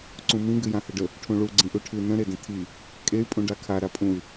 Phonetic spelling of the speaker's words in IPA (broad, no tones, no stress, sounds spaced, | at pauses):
ǀ ũ m ĩ ɡ ɨ j ã h ɘ ɖ ə | ʈʰ ũ ɭ u ɡ͡ǀ ĩ ʔ u ʈʰ ɨ n ə̃ ɾ e d ə̃ tʰ i | kʼ e y̯ pʼ ũ ɖ a kʰ a ɾ a pʼ ũ y̯